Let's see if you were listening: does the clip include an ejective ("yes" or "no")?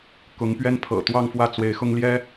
no